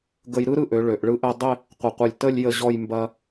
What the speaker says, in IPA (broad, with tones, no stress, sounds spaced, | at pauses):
ɡ ə˧ j ɾ ɯ˥ ɾ ɯ˧ ʔ ø˩˧ ɭ ø˩˧ ʔ ɭ ɯ˥ ʔ ɛ˥˧ dˤ ɪ˥˧ | qʷ ə˧˩ qʷ ɯ˧˩ lʲ t ə˥˧ lʲ j ə˥˧ ʑ ɔ˥˧ j m b ɐ˧